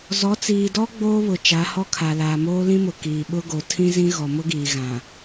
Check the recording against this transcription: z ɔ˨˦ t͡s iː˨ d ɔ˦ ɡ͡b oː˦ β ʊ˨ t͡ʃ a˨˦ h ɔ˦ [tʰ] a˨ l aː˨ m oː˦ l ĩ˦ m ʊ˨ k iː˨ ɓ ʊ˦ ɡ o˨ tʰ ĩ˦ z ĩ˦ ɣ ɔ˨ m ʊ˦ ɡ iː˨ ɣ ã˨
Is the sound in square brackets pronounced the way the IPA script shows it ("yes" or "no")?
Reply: no